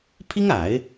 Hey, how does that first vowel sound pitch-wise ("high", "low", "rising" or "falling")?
high